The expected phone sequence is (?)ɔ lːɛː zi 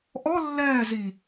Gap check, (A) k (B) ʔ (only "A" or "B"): B